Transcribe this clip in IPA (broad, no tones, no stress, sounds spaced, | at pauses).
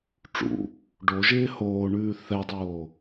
ʈ͡ʂ ṵ | ɖ o ʒ ɪː h oː ɳ ʉː θ ɛ dˤ oː